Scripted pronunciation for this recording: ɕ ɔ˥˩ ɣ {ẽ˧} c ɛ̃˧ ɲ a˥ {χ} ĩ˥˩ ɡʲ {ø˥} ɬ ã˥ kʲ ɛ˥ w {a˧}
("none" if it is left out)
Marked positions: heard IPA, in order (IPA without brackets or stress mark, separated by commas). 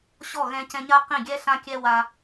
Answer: ɛ̃˧, q, ɛ˥, a˧